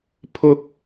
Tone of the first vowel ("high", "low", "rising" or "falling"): high